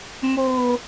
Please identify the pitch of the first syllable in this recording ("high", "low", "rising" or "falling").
high